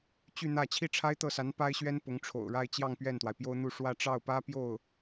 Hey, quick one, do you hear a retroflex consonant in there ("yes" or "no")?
yes